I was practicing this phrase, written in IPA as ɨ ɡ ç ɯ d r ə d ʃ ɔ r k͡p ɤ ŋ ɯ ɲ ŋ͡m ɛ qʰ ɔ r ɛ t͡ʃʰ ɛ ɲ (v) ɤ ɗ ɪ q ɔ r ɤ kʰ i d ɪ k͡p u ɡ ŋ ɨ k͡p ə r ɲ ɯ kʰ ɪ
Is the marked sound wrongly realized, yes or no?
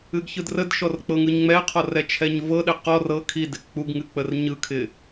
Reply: no